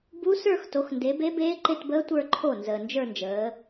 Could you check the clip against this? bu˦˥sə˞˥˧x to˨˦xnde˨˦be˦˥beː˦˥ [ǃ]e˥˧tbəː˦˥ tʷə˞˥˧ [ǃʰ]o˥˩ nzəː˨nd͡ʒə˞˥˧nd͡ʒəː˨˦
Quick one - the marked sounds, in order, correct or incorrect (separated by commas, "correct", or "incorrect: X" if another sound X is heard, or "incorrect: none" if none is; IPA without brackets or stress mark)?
correct, correct